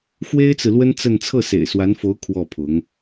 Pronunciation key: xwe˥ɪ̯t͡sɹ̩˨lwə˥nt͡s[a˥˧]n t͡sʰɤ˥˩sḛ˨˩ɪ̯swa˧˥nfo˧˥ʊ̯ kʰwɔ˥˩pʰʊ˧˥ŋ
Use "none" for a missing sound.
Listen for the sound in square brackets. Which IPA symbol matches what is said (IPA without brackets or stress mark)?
ə˥˧